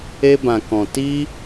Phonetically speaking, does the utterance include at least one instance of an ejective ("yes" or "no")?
no